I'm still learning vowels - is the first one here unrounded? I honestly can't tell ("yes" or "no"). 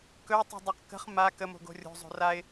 no